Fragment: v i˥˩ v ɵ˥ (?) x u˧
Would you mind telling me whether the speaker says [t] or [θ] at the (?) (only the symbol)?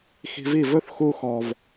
θ